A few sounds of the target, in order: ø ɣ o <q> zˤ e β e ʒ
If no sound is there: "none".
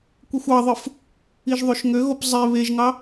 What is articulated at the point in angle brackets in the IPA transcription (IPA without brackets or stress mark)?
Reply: p